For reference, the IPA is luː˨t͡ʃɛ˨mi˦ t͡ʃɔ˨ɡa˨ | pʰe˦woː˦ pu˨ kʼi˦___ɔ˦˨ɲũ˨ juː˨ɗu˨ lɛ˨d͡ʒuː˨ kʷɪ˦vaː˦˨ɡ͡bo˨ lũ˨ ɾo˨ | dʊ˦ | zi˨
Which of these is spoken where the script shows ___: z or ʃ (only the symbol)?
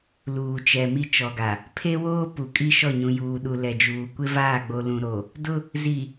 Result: ʃ